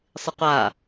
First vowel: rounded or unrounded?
unrounded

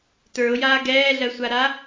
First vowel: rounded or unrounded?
unrounded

